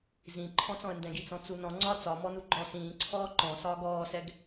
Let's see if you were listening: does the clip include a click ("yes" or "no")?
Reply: yes